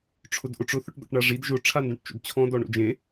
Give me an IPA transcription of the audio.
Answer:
ʈ͡ʂʰ ʊ d ʔ ʊ ʈ͡ʂ ʊ θ ʊ ʈ d̪ ɔ̰ ʈ ɳ a ʐ i d ʒ ʊ ʈ͡ʂʰ a n d õ ʈ t͡ʃ o̰ d t͡ɕʰ ɔ̃ d ɔ ɳ o̰ d͡ʒ ẽ

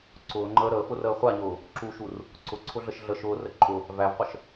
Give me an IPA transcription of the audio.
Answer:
ǀ ʊː ŋ͡ǃ əː ɾ əː f ʊ r əː χʷ a ɲ ʊː | ǁ u ʃ u r | ǀ ʊ ǀʰ ʊ ɮ ə ʃ ɮ ə ʃ ʊː r ə ǃʼ ʊ | v æ v qʷ ə ʃ

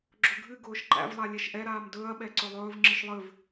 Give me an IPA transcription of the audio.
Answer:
ɡ͡ǁ ʊ ɡʱ ɨ ɡ ʊː ʃ ǃ æ̰ v lˠ a lʲ ɛ ʃ ʔ ɛ ɾ aː m d ɵː ɐ̯ ɓ ɛ ǀ ɵ lˠ ɵː v ŋ͡ǁ ɨ ʃ lˠ ɨ v

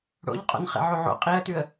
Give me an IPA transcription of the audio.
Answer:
ɽ o̰ ʎ qʼ o̰ n χ ḛ ʕ o ʕ o̰ qʼ i ə̯ t ʉ ə̯

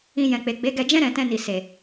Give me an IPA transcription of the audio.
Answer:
ĩ˧ j ɛ̃˨ k͡p e˨ ɡ͡b e˨˦ ɡ ɛ˧ d͡ʒ ɛ̃˦ ɾ ɛ̃˧ t ɛ̃˧ n i˨ s e˨

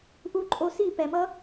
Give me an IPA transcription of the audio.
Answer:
ʔ u˧ ǃʼ o˧ s i˦˨ p ɛ˨ m ʌ˦

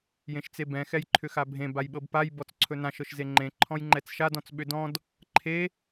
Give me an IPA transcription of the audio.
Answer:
j ẽ ʃ t͡s e b ɛ̃ x ɛ j ǃʰ ʏ x a bʱ ẽ b a j ɓ ɤ b p a j b ɔ t͡s ǀʰ ɵ n ã ʃ ɤ ʃ z e ŋ͡ǃ ẽ ǃʰ ɔ̃ j ŋ͡ǃ ɛ t͡s ʃ a d ɔ̃ t͡s ɓ ʏ d ɔ̃ d | ǃʰ e

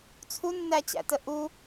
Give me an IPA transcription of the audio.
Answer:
t͡sʰ u nː æ t͡ɕ æ̰ t ə ʔ u

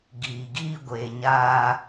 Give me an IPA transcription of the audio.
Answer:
ɡ iː˨ ɡ iː˦ ɡʷ eː˨ ɲ aː˦

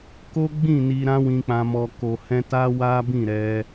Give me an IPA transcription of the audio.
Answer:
k o˦ ɡ͡b ĩ˦˨ n i˨ ɾ ã˧ w ĩ˨ k͡p ã˨ m ɔ˨ k o˨ h ɛ̃˧ t a˦ w a˦ b ĩ˦˨ ɾ ɛ˧

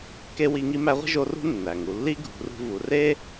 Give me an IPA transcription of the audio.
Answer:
k e˥ w i˧˥ ŋ i˧˥ m æ˧˥ ʁʷ i̤˥ ʒ o˧˥ r ṳ˥ nː æ˩ ŋ u˩˧ lː i˥ ɡʱ ṳ˩˧ r ṳ˧ v u˩˧ r e˥

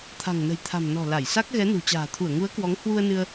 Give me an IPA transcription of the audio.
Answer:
t̪ʰ a̤˨˩ ŋ n ə̤˨˩ j t̪ʰ a̤˨˩ m n ɔ̤˨˩ l a˧˩ j s a˦˥ k̚ ɣ ɛ˨˦ n ṳ˨˩ t͡ɕ a̤ː˨˩ t̪ʰ u˧˩ ə̯ ŋ u˨˦ ə̯ k w ɔ˨˦ ŋ h w u˧ ə̯ n ɨ˧ ə̯

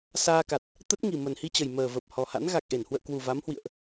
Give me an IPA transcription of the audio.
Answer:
s aː˧ k a˨˩ t̚ | t̪ ə˦˥ t̚ ŋ i˨˩ m ə˨˩ n h i˧ t͡ɕ ə˨˩ j m əː˨˩ v ə˨˩ p̚ h ɔ˨˩ h a̰˧˥ n ɣ a˨˩ k̚ ʔ e˧˩ n h w ə̰ː˧˨ k w u˨˩ v a˨˦ m h w ḭ˧˨ ə̯ ʔ

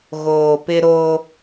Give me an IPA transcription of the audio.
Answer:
ɣ oː˨ p ɪ˦ ɾ o˦

